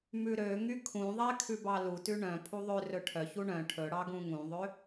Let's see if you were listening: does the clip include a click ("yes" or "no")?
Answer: no